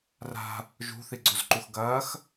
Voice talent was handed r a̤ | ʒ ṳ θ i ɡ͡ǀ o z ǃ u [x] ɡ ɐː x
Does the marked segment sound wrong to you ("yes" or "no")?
no